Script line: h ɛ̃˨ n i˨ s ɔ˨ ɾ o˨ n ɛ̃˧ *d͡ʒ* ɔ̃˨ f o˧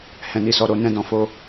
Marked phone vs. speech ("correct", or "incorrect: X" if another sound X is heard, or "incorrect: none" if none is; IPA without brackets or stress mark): incorrect: d